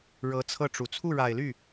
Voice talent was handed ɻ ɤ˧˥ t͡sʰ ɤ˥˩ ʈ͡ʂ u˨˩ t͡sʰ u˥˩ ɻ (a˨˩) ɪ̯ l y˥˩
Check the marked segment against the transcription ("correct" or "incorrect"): correct